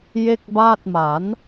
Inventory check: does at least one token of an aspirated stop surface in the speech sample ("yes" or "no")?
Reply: no